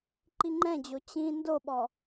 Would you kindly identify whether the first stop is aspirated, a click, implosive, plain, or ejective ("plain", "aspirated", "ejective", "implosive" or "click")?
click